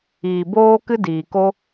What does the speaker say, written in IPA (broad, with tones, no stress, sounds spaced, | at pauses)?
iː˨ b oː˦ k ɨ˦ d iː˨ k o˦